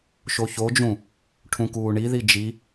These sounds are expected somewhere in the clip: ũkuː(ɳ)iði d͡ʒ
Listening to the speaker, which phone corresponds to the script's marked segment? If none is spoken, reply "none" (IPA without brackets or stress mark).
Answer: ɳ